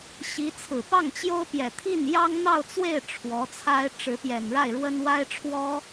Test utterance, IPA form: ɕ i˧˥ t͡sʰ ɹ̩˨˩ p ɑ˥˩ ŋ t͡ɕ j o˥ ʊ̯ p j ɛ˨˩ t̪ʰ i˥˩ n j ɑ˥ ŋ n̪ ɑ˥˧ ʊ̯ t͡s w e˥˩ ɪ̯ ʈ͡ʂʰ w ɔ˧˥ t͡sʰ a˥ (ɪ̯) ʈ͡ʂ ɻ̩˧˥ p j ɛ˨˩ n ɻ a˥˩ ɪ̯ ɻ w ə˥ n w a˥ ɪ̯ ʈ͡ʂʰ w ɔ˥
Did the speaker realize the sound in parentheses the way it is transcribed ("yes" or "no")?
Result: yes